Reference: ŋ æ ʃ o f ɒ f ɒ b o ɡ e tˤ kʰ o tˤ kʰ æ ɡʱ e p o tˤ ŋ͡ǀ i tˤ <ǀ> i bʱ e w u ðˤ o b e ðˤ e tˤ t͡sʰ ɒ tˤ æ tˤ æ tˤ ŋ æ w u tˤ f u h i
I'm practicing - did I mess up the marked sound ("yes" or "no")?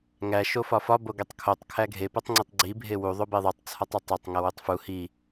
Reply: yes